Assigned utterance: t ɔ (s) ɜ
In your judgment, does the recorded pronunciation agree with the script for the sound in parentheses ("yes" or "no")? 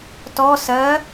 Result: yes